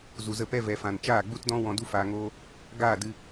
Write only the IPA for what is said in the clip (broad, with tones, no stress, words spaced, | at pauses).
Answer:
zu˨zə˦˨pɛ˦ vɛ˨fã˨n t͡ʃaː˦˨ɡ͡bu˦tdɔ̃˦ wɔ̃˧du˦faː˧ŋoː˦ | ɡaː˦˨dɨ˧